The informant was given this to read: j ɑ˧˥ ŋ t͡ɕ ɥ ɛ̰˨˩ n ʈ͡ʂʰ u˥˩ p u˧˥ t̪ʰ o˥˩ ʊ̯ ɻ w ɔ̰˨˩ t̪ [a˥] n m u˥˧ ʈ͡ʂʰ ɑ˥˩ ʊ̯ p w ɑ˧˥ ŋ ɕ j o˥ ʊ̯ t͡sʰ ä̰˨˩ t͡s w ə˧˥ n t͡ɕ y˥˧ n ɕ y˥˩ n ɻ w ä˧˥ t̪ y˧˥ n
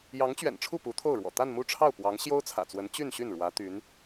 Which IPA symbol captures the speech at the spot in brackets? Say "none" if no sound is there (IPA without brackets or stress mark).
a˥˧